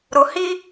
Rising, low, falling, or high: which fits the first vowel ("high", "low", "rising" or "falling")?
low